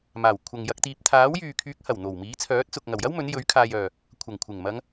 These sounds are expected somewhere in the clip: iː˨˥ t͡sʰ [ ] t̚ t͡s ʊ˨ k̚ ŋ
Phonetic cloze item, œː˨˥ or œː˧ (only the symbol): œː˨˥